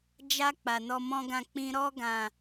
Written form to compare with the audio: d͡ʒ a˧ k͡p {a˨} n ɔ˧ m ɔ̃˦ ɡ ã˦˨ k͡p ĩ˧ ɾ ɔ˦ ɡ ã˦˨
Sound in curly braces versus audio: correct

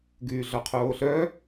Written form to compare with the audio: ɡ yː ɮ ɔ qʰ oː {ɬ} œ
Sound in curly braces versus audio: correct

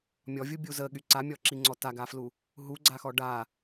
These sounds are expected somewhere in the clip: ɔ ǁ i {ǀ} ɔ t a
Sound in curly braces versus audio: incorrect: ŋ͡ǀ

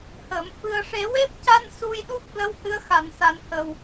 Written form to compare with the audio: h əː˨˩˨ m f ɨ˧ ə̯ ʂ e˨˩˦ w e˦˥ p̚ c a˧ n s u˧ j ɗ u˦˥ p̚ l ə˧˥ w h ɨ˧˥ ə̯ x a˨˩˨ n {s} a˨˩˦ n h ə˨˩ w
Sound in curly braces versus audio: correct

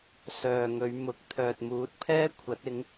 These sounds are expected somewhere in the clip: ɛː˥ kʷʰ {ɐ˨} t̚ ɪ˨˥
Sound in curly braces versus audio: incorrect: ɐ˨˥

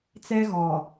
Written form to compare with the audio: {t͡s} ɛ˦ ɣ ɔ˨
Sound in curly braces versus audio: correct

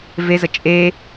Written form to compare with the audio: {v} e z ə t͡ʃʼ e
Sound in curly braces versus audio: correct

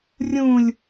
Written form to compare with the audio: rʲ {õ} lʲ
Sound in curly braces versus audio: incorrect: ũ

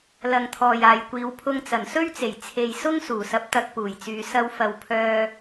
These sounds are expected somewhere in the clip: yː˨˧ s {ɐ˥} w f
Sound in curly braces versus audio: incorrect: ɐ˧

